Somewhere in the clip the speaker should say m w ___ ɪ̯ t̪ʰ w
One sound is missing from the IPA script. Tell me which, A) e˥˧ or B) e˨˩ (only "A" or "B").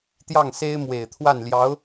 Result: B